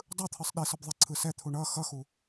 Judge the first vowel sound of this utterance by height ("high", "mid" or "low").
high